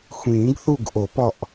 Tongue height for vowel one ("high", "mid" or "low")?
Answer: high